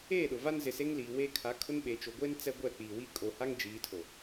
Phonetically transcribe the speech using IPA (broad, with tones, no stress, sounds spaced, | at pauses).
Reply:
eː˦˨ ɗ ʊ˨ v a˦ n z ɪ˨ s e˦ ŋ l iː˨ w eː˦ kʰ a˨˦ kʰ ʊ˦ n ɓ e˨ t͡ʃ o˨ ɡʷ eː˦ n t͡s ɛ˦ ɡʷ ɛ˦˨ k͡p iː˨ w i˦ kʼ o˨ h a˦ ŋ d͡ʒ iː˨˦ tʰ o˨